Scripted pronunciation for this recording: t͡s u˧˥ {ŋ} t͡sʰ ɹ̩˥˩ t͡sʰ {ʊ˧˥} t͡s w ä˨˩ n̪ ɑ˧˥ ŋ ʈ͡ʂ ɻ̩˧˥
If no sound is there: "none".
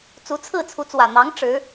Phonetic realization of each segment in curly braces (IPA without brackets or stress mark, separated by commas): none, u˧˥